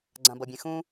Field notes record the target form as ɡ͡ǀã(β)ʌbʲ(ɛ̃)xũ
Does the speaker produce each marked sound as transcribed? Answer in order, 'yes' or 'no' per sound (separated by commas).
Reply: no, no